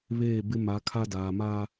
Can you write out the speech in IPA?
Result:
βeː˦˨bɪ˦ ma˨˦kʰa˦daː˨ maː˦

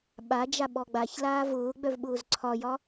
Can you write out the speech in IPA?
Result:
ɓa d͡ʒaɓɔɡ͡baç laːvʊːɡ͡bœvɓʊːz ǀʰɒjɒ

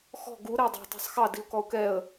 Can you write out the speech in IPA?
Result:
xɔ̤ ɡu ɾɛə̯dˤɑ̤ tˤɑ̤sˤxɑ diʊ̯kɔʊ̯kɛə̯

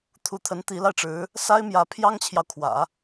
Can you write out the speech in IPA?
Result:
t̪ʰu˧˥t̪ʰə˧˥n t̪i˧˥la˧ɪ̯ʈ͡ʂɻ̩˧˥ | sa˥ɪ̯mjä˧˥pʰjɑ˥ŋt͡ɕʰjɑ˨ʊ̯ kʰwä̰˨˩˦

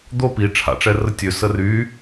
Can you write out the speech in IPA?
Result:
d̪o pi ʈ͡ʂʰa̰ʈ͡ʂɛrə tʲø səry

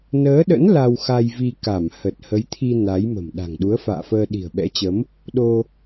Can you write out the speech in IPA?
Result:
nəː˨˦ɗə̰˧˥n la˧wxa˧jvi˧ ka˧˩mhə˨˩t̚ hə˨˦jt̪ʰi˧ na˨˦jmə̤˨˩m ɗa̤˨˩ŋɗu˨˦ə̯fa̰ː˧˨fəː˧ ɗi̤˨˩ə̯ɓɛ̰˧˥t͡ɕə˨˦m | ɗo˧

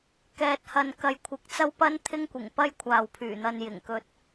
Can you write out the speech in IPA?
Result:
kɛː˨t̚hɐ˨n kɐ˨jkʷʰɪ˨k̚t͡sɐ˥wpɐ˥n t̪ʰɪ˥ŋkʷɪ˨˩ŋpɐ˥j kʷʰaː˨wpʰyː˨˩n̪ɐ˧n jɪ˨˩ŋkɵ˧t̚

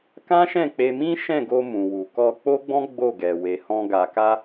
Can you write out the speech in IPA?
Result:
kã˦ʃɛ̃˦˨k͡pe˧mĩ˦ ʃɛ̃˦˨ɡo˧ mũ˨wu˨ kɔ˧k͡po˦ɡ͡bɔ̃˦ ɡ͡bo˦˨ɡɛ˨ we˨hɔ̃˧ ɡa˨ka˧

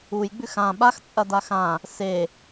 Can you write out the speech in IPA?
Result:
ujɡ͡bʉx ã ɓaxt͡sʼɐda xã | se

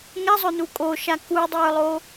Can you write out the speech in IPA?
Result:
ŋɛzˤɵnu kʼoʃa kudˤə˞lˠo

